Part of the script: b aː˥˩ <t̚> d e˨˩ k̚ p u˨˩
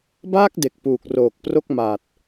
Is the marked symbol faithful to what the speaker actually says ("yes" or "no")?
no